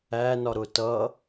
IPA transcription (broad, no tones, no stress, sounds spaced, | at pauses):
æ n ɒ ɾ ʊ t ʌ